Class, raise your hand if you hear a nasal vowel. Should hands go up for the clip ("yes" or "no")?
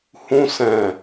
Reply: yes